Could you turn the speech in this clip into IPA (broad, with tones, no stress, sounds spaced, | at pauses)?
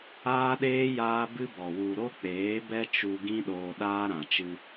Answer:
aː˦ ɗ eː˦ j aː˦ b ɨ˦ b ɔ˨ w u˨ ɾ o˦ k͡p eː˨˦ b ɛ˦ t͡ʃ u˧ ɡ ĩ˦ ɗ oː˧ ɗ aː˦ ɾ ã˨ t͡ʃ ɨ˧